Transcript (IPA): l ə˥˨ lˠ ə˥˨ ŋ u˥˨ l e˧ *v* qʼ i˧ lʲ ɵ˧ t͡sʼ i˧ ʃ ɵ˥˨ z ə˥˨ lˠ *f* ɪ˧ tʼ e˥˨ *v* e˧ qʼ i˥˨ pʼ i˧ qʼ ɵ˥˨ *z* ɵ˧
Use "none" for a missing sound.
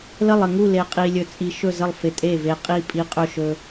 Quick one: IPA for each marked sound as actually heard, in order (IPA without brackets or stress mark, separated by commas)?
none, f, v, ʃ